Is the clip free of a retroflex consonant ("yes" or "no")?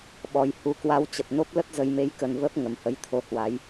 yes